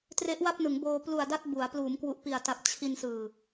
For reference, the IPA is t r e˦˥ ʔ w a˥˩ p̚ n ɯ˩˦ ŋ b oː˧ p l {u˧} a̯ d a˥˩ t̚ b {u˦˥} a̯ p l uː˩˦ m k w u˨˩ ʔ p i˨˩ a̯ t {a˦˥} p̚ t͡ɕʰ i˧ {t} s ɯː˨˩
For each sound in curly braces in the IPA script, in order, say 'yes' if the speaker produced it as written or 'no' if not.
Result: no, no, no, no

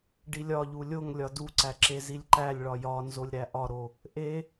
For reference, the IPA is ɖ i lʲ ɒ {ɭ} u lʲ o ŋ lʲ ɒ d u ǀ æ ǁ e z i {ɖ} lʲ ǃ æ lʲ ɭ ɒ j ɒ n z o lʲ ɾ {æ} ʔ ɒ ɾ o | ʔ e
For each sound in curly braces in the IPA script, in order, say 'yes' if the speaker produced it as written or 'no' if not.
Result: no, no, yes

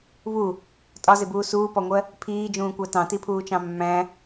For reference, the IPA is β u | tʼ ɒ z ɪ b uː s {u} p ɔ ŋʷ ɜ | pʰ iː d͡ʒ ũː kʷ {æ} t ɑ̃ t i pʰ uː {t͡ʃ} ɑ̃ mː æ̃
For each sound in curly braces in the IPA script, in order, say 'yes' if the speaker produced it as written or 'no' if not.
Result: no, yes, yes

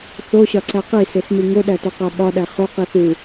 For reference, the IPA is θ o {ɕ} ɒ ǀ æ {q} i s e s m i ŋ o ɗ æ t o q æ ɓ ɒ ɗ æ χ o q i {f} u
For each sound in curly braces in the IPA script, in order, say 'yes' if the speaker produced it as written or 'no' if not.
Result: yes, yes, no

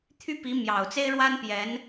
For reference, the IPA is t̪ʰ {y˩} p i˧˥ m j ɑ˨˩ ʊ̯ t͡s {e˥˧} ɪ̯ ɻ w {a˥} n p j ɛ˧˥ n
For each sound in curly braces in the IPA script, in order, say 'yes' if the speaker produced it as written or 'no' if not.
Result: no, no, yes

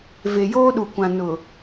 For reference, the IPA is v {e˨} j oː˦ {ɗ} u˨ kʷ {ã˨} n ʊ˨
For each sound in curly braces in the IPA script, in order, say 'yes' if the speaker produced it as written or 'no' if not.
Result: yes, yes, yes

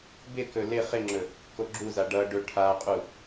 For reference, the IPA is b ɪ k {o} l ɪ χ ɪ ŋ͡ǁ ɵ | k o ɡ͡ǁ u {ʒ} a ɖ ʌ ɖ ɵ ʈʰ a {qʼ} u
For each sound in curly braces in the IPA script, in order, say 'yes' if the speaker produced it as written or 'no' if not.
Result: no, no, yes

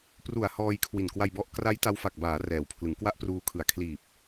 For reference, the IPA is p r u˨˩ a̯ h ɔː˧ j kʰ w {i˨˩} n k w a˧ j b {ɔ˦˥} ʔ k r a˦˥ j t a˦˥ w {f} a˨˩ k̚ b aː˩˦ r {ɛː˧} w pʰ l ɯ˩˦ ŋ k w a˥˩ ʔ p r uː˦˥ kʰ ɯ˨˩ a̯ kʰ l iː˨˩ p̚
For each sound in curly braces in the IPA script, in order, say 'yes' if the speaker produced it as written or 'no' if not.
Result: yes, yes, yes, no

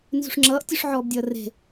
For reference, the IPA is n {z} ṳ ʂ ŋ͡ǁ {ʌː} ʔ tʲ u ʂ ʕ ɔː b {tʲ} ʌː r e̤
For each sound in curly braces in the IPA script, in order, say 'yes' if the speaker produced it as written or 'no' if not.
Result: yes, yes, no

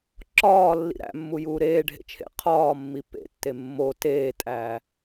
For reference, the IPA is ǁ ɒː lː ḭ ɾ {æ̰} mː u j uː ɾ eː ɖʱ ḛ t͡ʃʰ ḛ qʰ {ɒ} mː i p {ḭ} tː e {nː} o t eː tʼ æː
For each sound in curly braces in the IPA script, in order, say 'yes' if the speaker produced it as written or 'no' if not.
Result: yes, no, no, no

